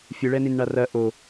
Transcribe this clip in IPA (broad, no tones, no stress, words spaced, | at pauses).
fʲɨɭɛnin ɳarɐ ʔo